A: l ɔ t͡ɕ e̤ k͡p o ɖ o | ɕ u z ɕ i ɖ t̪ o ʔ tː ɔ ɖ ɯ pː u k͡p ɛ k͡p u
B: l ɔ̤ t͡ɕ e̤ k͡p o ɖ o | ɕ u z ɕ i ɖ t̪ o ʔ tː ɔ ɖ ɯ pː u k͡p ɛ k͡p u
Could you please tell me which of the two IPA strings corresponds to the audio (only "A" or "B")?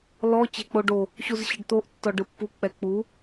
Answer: A